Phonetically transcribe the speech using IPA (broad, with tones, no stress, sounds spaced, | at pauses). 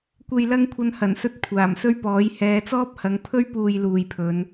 kʷ e˨ j l ɐ˥ ŋ kʷʰ ɐ˧ n h ɐ˨˩ n s ɵ˧ t̚ kʷʰ aː˨˩ m s ɵ˥ ɥ p ɔː˨˥ j h ɛː˨˧ t͡s ɔː˥ p̚ h ɐ˨˥ ŋ pʰ ɵ˥ ɥ p uː˨ j l uː˨ j pʰ ɵ˨˧ n